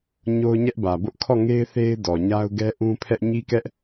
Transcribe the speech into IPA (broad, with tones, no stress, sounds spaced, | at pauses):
ɲ o˦ ʊ̯ ɲ ɛ˦ ʔ b ä˨ b ʊ˦ ʔ kʰ ɔ˦˨ ŋ e˦ ɪ̯ θ e˦ ɪ̯ d ɔ˨ ɲ a˦ ʊ̯ ɡ ɛ˦ ʔ ũ˦ pʰ ɛ˦ ʔ ɲ i˦ k ɛ˦ ʔ